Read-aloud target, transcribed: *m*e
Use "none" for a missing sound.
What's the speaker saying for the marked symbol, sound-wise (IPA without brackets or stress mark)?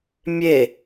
mʲ